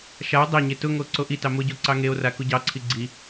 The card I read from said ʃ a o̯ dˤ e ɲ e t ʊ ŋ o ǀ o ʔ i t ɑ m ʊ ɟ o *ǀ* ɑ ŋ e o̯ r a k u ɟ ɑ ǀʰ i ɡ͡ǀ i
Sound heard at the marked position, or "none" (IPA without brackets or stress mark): ǀ